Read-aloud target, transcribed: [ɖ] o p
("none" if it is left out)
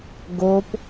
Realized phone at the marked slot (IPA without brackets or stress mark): ɡ